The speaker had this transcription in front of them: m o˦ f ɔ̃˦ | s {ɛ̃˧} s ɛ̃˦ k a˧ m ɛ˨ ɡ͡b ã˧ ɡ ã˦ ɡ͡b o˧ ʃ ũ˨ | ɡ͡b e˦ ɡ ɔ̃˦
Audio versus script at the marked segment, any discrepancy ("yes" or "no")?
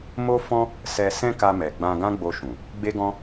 yes